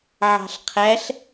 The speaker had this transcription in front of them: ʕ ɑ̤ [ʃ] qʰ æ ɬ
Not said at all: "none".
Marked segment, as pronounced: ɬ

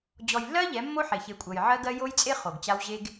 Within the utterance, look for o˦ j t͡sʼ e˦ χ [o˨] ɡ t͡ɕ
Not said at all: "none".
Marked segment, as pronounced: o˨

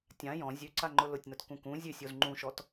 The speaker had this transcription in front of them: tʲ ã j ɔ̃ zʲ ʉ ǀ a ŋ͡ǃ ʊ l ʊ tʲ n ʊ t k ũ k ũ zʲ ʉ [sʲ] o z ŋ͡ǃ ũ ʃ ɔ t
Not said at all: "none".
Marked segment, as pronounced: sʲ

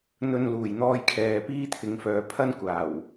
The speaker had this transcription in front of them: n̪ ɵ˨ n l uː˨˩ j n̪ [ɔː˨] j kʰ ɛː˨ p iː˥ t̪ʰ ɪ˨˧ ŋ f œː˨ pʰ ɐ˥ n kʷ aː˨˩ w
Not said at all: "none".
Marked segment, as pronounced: ɔː˧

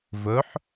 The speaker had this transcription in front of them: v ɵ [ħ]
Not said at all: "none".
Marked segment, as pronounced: ħ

